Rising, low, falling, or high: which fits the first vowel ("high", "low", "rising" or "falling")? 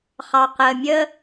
low